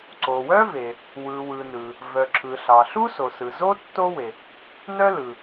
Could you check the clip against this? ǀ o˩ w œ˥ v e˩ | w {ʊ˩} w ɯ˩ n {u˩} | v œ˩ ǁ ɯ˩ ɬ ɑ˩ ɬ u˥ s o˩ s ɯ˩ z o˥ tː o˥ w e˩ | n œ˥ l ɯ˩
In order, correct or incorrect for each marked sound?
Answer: incorrect: ɯ˩, incorrect: ɯ˩

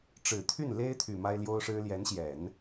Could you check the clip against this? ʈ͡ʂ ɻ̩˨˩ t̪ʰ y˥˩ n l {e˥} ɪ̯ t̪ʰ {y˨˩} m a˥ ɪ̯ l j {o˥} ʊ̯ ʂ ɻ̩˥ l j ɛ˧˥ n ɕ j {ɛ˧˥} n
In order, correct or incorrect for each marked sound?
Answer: correct, correct, correct, incorrect: ɛ˨˩˦

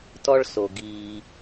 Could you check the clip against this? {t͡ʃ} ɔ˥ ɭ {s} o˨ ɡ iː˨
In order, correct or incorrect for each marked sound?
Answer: incorrect: t, correct

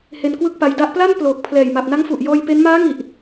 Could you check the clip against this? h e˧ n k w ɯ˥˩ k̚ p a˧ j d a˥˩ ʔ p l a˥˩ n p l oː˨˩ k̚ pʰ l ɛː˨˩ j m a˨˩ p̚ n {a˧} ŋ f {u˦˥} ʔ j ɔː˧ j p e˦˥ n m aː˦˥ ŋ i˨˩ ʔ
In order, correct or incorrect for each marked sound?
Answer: incorrect: a˦˥, incorrect: u˨˩

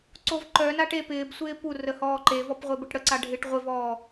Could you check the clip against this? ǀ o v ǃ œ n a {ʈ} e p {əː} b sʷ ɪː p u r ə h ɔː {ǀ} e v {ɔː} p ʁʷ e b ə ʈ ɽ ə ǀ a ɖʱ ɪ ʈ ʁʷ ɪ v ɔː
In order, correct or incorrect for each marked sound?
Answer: correct, incorrect: ɪː, incorrect: ǃ, incorrect: ɔ

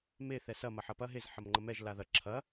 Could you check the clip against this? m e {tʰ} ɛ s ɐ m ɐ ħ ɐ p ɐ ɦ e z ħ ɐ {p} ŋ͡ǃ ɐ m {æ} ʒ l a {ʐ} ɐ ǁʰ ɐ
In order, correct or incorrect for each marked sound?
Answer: incorrect: θ, incorrect: m, incorrect: ɛ, incorrect: ð

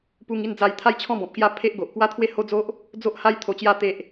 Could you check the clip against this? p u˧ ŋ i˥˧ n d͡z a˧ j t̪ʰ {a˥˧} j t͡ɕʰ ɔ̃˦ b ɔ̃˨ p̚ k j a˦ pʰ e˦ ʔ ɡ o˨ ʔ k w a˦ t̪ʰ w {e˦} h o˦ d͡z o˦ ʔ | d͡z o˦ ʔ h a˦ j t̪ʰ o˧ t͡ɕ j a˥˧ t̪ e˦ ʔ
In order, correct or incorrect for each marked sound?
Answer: correct, correct

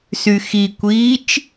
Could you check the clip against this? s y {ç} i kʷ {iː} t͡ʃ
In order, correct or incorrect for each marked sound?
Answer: incorrect: x, correct

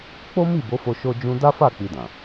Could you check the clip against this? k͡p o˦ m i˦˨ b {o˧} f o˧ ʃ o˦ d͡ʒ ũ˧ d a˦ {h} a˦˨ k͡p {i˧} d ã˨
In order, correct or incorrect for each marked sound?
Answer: incorrect: o˨˦, incorrect: f, correct

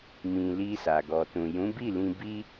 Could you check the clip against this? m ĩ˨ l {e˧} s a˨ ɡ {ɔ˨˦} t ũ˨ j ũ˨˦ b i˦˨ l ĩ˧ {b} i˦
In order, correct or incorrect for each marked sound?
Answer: incorrect: i˧, incorrect: ɔ˨, correct

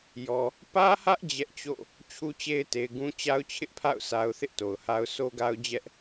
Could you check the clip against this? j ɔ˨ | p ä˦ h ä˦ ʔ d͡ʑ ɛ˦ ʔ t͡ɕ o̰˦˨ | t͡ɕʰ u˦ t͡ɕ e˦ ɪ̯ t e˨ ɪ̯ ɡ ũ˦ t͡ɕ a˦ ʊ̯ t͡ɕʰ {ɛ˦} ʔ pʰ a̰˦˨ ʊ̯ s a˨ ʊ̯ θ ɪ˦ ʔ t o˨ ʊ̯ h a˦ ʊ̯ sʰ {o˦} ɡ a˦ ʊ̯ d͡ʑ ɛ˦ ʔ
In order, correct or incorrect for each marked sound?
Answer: incorrect: ɪ˦, correct

